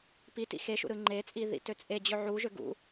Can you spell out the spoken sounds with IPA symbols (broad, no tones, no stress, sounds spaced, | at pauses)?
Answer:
p i t ḭ x e ʃ ṵ ɾ ɯ ŋ͡ǃ e t͡sʼ i ð ḭ t ø t͡sʼ e d͡ʑ ø ʕ u ʒ ø ɡ ṵ